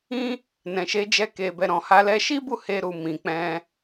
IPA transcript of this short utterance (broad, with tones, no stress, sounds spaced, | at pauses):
ĩ˧ | n ɛ̃˨ ʃ e˧ d͡ʒ ɛ˧ k e˨ b ɛ˨ ɾ ɔ̃˨ h a˧ l ɛ˧ ʃ i˦ b u˦˨ h e˧ ɾ u˨ m ĩ˨ k͡p ɛ̃˧